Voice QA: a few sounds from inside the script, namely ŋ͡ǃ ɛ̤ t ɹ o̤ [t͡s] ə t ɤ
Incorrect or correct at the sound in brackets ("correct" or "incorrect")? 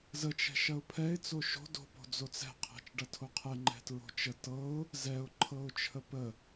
incorrect